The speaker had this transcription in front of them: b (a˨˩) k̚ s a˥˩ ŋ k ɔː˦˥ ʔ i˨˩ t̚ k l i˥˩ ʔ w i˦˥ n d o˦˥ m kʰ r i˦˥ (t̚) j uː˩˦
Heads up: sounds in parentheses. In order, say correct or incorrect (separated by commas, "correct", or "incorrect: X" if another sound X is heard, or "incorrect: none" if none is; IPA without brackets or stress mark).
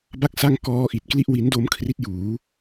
incorrect: a˥˩, correct